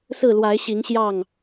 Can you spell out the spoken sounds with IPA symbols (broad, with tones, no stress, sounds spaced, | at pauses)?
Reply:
s ɹ̩˥˨ l w a˨˦ ɪ̯ ɕ i˨˦ ŋ ɕ j ɑ˥˨ ŋ